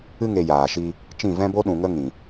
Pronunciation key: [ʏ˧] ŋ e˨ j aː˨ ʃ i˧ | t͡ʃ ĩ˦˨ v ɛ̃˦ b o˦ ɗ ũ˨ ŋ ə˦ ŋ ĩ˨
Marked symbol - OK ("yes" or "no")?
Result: no